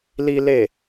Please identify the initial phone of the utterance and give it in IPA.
l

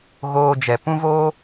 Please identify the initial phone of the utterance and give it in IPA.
ɣ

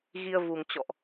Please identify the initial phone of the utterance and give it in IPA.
ɣ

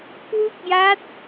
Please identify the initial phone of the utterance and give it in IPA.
k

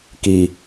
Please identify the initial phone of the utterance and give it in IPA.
k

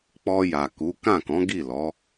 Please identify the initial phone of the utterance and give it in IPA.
k͡p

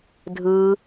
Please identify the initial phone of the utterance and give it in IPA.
dʱ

